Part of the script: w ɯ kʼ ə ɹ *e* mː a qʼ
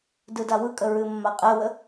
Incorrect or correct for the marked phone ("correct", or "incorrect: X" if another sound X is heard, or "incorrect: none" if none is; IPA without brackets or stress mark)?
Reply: incorrect: ɨ